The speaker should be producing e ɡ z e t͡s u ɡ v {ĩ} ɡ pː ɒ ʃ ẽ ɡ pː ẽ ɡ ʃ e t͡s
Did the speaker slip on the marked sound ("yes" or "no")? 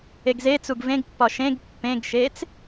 yes